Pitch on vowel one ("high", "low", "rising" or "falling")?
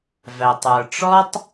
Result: low